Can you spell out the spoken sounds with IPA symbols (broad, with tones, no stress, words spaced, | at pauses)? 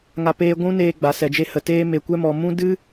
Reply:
ŋa˦peː˦ ɡʷũ˦neː˧ ɡ͡ba˨sɛ˨d͡ʒe˧ hə˧teː˦me˧ kʷɛ˦mɔ˧ mũ˦ dɨ˦